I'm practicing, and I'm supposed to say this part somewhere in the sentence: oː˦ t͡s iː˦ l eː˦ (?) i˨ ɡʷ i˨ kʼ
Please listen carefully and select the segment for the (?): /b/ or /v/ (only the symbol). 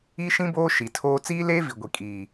v